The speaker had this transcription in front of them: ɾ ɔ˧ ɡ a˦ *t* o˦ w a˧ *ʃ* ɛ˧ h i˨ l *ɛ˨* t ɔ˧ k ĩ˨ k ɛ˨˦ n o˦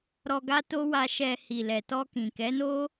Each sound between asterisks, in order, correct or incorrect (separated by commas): correct, correct, correct